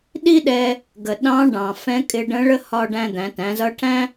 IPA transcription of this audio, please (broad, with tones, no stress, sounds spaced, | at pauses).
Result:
ɗ i˥ ɗ ɛ˧ | ɡ ə˩ ɗ ɑ̃˧˥ ɖ ɑ̃˩ f ɛ̃˧˥ kʼ ɪ˧ ɖ ə̃˧˥ ɭ ə˥ h ɒ˧ ɖ æ̃˧ d̪ æ̃˩˧ t æ̃˩˧ z ʌ˧˥ ʈʰ æ̃˥